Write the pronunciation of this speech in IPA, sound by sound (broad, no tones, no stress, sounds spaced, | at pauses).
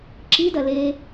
ǁ i d ɐ l e